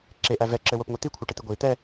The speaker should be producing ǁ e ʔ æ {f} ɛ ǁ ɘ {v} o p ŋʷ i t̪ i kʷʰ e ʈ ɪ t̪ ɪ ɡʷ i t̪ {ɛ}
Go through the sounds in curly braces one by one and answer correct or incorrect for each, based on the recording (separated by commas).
incorrect, incorrect, correct